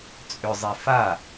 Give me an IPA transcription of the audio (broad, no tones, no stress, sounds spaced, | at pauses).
t͡sʼ ʏ zˤ e f a